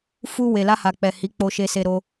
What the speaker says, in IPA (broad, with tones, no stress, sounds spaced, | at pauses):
f u˧ w e˨ l a˧ h a˨ k͡p ɛ˨ h i˨˦ k͡p o˧ ʃ e˧ s e˧ ɾ o˧